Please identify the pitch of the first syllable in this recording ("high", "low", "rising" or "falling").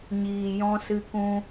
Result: low